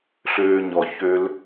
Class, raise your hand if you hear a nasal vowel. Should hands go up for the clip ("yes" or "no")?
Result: no